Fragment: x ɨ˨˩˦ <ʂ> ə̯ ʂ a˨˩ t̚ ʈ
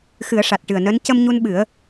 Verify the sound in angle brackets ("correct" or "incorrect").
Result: incorrect